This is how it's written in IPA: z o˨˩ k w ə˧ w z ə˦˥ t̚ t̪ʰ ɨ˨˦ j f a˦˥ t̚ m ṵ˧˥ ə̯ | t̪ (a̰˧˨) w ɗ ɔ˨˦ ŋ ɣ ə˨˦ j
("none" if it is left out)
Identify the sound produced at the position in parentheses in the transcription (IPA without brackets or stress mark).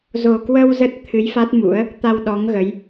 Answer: a˧